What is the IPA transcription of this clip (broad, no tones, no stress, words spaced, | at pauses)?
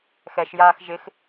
xɛʃjaːx ʒɪx